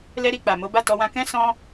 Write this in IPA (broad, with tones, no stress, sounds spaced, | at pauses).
l ɛ˧ ɾ i˨ k͡p a˨ m o˨˦ b a˦˨ t ɔ˧ w ã˧ k ɛ̃˦ s ɔ̃˦